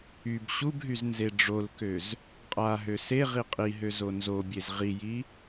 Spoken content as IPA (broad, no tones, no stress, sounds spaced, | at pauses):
y b ɕ u b ɦ y z n z e ɖ͡ʐ o l k ø z | qʼ a ɦ ø s e ʁ i qʼ i ɦ ø z o n z o bʲ e z ʁ i j i